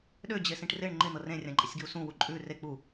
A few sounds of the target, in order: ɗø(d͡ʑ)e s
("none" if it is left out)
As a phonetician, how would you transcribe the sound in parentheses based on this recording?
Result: d͡ʑ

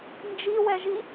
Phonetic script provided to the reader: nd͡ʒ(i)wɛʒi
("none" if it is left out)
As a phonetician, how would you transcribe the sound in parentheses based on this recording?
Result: i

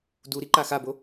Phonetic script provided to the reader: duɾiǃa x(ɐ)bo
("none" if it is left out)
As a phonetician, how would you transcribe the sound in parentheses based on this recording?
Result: a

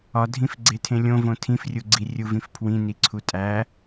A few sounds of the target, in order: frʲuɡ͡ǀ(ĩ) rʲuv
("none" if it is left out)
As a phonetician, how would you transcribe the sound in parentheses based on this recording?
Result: i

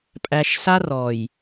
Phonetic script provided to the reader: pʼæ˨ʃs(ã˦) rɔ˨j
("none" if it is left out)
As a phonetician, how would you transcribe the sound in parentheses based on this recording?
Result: a˦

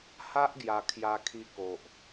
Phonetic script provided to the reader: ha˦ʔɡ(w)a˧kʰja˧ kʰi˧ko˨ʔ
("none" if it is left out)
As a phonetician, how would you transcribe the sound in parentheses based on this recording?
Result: j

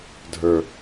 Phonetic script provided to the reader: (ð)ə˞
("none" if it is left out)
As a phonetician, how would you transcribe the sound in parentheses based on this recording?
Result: dʱ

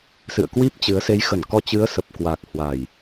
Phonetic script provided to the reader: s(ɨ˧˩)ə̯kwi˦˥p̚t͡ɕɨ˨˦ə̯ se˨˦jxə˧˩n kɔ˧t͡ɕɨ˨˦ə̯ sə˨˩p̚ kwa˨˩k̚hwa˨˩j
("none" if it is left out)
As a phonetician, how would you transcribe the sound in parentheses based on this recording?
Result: ɨ̰˧˨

